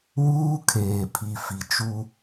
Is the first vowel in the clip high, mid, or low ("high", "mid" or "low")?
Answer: high